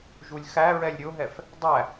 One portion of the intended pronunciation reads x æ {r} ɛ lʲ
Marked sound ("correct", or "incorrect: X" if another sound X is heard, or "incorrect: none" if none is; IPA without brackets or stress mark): incorrect: ɹ